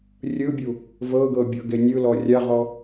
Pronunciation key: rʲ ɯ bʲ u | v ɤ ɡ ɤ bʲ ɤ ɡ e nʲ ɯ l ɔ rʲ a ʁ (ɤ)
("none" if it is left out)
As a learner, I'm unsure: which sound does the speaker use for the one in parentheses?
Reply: ɔ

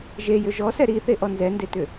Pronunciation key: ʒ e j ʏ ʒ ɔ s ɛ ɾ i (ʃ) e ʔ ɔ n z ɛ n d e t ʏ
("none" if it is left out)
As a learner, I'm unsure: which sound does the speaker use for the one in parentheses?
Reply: θ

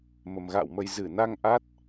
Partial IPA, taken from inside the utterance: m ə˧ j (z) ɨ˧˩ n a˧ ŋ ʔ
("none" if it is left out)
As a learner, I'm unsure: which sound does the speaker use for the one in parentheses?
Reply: z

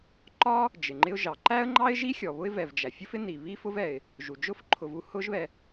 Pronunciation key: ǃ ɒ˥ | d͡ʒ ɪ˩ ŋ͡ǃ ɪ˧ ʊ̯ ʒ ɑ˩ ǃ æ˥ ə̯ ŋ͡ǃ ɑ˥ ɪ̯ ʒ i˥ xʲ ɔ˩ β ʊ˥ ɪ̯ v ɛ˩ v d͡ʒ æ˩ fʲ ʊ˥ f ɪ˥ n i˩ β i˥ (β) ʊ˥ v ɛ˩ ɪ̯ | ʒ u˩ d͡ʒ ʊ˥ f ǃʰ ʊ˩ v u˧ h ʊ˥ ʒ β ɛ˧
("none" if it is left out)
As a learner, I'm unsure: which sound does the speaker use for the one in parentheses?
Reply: f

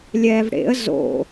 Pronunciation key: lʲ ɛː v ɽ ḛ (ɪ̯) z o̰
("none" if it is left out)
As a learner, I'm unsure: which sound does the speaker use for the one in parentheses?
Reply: ə̯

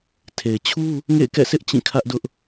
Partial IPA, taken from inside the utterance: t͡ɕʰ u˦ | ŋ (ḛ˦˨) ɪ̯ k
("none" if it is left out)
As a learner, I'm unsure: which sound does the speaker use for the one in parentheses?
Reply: ḛ˦˨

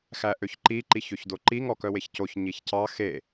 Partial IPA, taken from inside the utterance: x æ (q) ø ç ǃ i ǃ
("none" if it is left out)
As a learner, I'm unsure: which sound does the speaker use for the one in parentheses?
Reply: ʔ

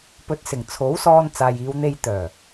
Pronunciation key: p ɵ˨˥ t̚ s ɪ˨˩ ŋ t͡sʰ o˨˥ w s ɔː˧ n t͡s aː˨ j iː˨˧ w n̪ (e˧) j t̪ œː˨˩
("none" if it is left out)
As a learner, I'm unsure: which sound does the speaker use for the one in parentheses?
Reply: e˧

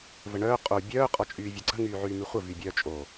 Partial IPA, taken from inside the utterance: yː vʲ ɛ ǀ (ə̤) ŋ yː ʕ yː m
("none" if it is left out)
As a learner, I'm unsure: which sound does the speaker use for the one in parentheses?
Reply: ə̤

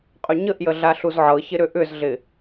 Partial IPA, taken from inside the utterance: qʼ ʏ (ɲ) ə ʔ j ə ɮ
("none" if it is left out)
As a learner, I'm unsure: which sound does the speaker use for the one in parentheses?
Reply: ɲ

